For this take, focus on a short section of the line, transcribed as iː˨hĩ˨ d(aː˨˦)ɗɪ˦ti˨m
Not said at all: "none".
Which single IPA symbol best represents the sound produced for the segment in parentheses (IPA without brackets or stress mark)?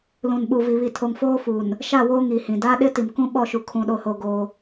aː˦